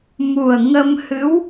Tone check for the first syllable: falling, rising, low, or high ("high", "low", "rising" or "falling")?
low